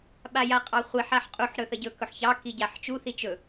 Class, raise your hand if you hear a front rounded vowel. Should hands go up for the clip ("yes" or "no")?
no